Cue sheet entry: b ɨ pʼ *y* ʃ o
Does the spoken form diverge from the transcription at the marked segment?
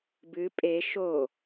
yes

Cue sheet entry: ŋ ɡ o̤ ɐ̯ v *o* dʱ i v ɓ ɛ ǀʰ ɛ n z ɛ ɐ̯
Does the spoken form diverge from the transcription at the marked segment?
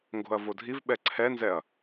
no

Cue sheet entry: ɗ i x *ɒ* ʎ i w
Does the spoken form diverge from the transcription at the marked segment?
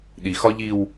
no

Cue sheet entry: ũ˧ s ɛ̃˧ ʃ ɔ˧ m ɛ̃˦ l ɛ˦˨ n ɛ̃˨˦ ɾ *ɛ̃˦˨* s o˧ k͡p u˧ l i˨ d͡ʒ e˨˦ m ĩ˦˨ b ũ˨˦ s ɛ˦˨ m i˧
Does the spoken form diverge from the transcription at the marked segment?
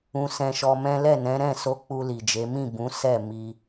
no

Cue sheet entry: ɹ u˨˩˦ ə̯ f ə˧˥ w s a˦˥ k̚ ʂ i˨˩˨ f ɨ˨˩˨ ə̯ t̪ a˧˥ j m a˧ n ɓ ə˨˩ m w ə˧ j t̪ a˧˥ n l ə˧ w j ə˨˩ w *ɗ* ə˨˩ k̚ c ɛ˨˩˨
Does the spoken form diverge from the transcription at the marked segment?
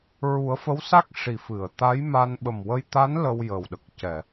no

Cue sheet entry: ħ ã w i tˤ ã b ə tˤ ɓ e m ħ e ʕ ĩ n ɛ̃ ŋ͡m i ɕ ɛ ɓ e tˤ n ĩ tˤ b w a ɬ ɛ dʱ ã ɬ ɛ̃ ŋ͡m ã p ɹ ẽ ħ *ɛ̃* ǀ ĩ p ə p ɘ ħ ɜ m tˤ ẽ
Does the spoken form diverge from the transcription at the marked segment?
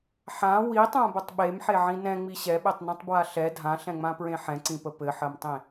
no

